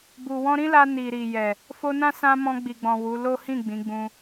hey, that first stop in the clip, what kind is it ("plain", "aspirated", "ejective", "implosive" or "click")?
plain